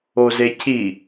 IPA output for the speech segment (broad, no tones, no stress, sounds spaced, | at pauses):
o z e cʰ i